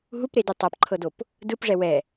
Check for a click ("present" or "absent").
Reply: present